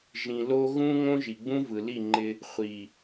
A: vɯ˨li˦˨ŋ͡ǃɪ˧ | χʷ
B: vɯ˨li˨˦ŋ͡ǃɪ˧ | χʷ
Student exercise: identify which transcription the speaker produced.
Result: A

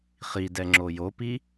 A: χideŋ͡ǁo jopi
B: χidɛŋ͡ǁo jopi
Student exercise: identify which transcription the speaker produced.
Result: B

